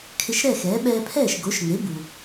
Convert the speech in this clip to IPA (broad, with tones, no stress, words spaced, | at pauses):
kʰɪ˧ʃ ɾɛ˥˩xɛː˩˥ ɓɛː˧pʰɛː˥˩ʃ ɡo˩˥ʃŋe˩˥ bu˩